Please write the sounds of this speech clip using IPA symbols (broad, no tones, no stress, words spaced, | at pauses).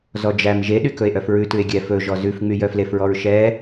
zɔd͡ʒæm ʒeɗykɵe̯ ʔœfɹʉtʉe̯ ɡʲɛ fɵʒɔ zʉfŋ͡my jœflefɹɔɹ ʃɛ